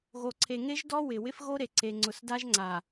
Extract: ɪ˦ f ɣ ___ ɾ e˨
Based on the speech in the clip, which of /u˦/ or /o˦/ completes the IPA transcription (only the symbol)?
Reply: o˦